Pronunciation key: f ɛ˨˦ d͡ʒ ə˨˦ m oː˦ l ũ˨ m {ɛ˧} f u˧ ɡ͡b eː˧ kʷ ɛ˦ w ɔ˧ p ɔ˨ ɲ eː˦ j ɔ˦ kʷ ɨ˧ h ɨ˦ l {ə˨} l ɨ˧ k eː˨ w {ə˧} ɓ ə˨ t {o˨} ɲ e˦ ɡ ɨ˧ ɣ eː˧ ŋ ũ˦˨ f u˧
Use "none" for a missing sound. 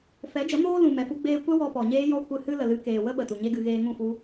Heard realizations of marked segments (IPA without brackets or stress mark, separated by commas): ɛ˨, ə˨, ə˦, u˨